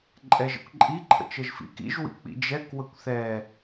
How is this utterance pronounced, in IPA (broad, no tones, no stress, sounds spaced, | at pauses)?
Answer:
ǃʼ ɛ ʒ ə̰ kʷ ǃʼ i ǃʰ ə̰ t͡ʃ ə ʒ f ḭ k ḭ ʒ w ḭ k͡p ḭ d͡ʒ ɛ k w ə kʷ θ ɛ